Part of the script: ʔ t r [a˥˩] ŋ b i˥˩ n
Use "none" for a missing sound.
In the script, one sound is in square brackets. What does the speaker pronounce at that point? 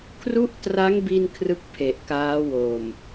a˦˥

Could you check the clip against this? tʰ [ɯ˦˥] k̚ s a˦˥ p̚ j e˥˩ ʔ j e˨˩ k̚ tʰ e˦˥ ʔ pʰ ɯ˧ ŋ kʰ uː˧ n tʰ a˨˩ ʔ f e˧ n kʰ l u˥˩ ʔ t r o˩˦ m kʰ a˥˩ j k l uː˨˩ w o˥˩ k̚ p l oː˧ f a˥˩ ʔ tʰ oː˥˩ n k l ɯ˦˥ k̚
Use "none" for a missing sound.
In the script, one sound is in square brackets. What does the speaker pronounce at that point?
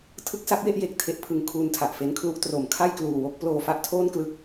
ɯ˦˥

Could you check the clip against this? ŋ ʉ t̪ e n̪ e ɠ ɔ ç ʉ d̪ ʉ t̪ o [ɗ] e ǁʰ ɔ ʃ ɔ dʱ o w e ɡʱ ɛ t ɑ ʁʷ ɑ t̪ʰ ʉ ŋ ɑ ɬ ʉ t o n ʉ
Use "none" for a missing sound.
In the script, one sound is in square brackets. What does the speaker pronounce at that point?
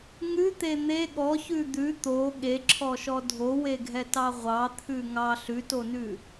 ɠ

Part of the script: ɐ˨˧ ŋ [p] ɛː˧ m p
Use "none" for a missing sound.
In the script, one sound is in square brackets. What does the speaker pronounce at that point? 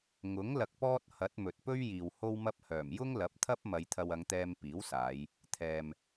t̪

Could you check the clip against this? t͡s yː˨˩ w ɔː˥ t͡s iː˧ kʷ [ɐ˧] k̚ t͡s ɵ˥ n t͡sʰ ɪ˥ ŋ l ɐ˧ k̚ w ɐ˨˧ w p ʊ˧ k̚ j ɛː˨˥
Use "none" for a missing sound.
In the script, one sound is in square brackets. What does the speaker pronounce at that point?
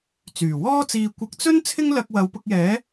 ɐ˧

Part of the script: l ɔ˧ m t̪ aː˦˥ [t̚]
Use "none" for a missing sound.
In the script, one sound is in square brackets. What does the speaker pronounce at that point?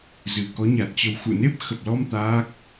k̚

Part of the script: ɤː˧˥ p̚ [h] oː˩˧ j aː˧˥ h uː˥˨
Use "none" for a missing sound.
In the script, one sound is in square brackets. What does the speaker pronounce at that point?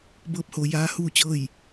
h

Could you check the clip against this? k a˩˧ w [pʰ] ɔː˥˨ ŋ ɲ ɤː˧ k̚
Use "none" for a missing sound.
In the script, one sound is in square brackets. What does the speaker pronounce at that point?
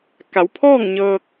pʰ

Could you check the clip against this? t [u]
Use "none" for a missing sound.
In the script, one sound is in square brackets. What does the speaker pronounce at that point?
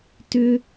ʏ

